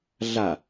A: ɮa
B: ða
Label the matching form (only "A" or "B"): A